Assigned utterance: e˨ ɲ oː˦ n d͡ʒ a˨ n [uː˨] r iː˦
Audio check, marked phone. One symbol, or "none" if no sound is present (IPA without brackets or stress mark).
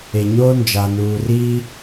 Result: uː˨